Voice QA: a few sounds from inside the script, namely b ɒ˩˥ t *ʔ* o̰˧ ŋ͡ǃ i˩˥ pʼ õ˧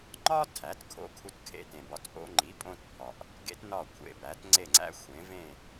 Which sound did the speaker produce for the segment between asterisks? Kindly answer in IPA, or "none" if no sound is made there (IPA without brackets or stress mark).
ʔ